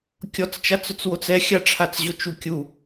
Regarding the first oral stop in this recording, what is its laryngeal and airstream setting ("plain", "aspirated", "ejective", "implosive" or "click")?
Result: plain